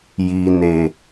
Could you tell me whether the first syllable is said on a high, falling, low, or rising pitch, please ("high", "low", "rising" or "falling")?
low